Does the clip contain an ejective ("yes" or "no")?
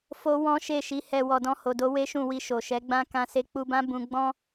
no